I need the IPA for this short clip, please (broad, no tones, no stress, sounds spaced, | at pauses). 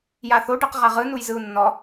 j a θ o ɖ ɯ q ʁ a ʁ ɯ n u j z ɯ u̯ nː ɔ